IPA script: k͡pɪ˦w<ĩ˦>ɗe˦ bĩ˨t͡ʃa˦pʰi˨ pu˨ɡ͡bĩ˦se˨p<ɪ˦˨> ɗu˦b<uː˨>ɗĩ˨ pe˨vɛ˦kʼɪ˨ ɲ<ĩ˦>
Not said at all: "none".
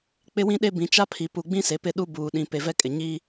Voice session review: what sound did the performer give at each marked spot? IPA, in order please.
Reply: ĩ˦, ɪ˦˨, uː˨, i˦

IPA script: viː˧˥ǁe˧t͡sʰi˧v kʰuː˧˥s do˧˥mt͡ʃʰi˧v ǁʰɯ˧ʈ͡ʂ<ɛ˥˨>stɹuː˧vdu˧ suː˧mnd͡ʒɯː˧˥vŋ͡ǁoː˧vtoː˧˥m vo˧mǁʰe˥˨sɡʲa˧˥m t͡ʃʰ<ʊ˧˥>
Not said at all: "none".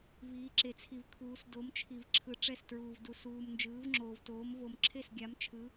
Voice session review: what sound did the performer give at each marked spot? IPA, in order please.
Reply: ɛ˥˨, ɯ˧˥

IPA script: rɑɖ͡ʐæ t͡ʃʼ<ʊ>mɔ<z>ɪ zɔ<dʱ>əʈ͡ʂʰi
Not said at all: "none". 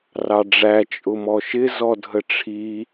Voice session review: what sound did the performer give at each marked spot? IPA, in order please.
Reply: ʊ, ʃ, dʱ

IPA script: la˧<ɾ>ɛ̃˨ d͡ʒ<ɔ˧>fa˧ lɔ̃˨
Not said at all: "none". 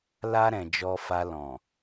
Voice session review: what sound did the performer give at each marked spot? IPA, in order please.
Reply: ɾ, ɔ˧

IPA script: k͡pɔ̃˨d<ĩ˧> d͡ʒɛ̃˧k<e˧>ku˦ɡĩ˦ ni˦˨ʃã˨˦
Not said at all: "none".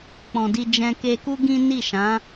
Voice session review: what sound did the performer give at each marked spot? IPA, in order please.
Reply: i˧, e˧

